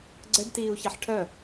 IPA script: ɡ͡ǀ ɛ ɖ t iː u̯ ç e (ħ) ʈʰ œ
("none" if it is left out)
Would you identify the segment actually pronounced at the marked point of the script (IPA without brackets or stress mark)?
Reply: ħ